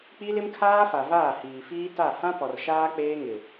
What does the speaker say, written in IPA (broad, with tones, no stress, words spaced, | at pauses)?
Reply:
k͡pi˦lɪ˦mkʰaː˦fa˨ vaː˦˨hiː˨fiː˦ta˦˨ hã˦pɔ˨r ʃaː˦ k͡peː˦ŋɪ˨